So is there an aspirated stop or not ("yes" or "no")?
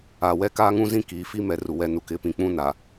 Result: no